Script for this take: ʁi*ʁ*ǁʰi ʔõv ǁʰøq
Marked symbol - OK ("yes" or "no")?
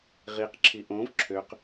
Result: no